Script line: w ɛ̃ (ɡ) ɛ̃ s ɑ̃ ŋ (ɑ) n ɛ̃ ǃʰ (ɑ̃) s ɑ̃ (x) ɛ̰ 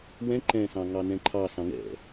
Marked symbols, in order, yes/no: no, yes, no, no

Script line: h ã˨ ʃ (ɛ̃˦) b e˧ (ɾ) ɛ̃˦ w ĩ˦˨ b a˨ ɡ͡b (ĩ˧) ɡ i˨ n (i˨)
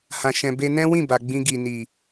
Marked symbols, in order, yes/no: no, no, yes, yes

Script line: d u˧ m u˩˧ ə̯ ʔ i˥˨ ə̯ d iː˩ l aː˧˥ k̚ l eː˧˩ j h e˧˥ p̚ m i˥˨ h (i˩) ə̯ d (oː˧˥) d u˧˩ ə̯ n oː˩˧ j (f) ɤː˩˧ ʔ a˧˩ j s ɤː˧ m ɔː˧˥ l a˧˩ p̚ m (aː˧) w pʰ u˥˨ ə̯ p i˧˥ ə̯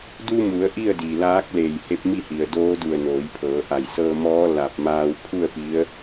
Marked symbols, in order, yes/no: yes, yes, no, yes

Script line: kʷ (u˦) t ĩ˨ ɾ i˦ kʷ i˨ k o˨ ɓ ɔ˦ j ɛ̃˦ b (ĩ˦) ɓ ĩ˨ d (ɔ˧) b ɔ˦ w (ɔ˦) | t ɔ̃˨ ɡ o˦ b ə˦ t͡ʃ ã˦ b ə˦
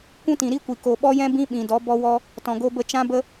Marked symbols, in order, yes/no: no, yes, no, yes

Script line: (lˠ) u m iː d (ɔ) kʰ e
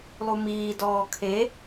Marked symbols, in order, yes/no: yes, no

